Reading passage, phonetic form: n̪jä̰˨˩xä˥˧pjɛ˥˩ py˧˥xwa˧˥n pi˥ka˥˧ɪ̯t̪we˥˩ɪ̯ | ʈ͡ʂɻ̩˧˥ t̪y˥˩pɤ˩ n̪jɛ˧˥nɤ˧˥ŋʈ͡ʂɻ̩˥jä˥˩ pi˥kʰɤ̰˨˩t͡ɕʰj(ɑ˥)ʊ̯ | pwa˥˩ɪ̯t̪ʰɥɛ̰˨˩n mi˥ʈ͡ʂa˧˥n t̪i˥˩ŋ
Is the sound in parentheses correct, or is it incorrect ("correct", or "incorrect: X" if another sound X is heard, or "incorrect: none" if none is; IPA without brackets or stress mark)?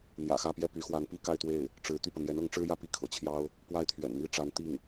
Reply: correct